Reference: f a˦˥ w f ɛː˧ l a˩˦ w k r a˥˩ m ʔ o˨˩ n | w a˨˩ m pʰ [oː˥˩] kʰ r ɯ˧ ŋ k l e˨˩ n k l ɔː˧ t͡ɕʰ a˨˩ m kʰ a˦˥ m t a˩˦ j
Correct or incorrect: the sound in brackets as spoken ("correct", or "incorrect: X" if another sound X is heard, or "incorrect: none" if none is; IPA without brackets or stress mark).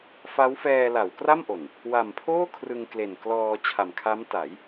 correct